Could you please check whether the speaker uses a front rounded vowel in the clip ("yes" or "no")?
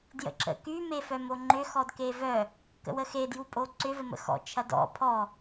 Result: yes